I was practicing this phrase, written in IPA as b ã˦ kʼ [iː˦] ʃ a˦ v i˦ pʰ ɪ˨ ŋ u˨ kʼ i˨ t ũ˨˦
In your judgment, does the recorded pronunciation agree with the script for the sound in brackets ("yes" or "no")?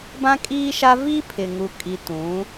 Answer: yes